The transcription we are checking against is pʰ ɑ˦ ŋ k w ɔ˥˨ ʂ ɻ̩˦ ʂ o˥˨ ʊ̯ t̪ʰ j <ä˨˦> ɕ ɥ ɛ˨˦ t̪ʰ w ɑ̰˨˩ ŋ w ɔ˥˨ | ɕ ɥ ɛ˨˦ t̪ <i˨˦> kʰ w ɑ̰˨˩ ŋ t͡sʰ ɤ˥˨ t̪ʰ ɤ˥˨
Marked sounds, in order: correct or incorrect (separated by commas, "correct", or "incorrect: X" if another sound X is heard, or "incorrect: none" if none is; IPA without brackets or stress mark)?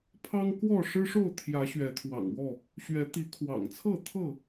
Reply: correct, correct